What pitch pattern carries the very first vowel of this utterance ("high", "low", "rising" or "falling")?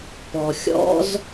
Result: low